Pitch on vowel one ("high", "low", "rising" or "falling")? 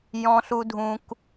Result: high